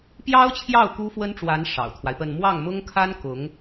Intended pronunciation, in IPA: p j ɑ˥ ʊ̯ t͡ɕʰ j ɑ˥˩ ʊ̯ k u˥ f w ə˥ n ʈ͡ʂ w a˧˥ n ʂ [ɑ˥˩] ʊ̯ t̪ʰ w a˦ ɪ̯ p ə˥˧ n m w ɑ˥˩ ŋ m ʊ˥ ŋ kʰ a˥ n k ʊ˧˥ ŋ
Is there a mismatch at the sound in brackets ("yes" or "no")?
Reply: yes